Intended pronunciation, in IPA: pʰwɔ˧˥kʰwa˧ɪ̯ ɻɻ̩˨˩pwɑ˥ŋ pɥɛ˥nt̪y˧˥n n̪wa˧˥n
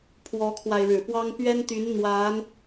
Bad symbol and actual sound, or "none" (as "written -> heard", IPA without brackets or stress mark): none